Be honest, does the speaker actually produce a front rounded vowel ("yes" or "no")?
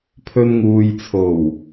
no